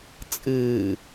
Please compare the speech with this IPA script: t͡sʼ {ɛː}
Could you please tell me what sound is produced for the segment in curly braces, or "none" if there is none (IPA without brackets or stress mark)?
ɨː